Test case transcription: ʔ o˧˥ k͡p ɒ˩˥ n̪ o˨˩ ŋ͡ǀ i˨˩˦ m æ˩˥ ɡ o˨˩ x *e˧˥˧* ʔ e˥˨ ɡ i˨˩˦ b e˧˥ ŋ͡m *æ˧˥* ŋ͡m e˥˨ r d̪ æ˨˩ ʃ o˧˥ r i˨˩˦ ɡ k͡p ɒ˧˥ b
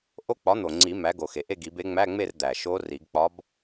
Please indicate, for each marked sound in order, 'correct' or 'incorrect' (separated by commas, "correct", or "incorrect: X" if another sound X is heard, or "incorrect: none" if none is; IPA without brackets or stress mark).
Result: incorrect: e˨˩, incorrect: æ˧˥˧